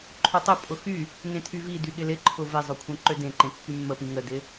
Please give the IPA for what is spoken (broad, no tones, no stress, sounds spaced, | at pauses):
ǃʰ o tˤ ɪ pʼ ʊ x y | ŋ ẽ tʰ y v i d y ɠ ɪ l ɪ ǃʰ ʊ v ɪ zˤ o kʷʰ ẽ ǃ ø d ẽ ǃ ẽ kː y mː ə p ĩ ŋ ə d ɪ